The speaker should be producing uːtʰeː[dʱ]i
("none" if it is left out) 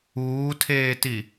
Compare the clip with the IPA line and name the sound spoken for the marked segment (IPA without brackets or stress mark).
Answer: t